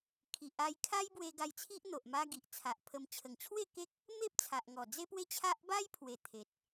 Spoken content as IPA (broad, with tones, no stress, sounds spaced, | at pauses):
kʰ i˨ ʔ a˧ j kʰ a˦ j b w e˧ ɡ a˧ j t͡sʰ i˦ ʔ n̪ o˨ ʔ m a˧ ɡ i˨ ʔ t͡sʰ a˨ ʔ pʰ ə˧ m t͡ɕʰ ə˨˩ ŋ t͡ɕʰ w e˥˧ k e˦ k̚ | m e˦ p̚ t͡sʰ a˨ ʔ ŋ ɔ˨˩ d͡z e˦ p w e˦ t͡ɕʰ a˦ ʔ b a˦ j pʰ w e˨˩ t̪ʰ e˨ t̚